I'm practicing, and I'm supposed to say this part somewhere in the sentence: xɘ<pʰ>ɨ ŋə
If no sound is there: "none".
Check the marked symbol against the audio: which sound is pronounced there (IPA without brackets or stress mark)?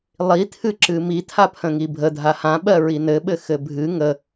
bʱ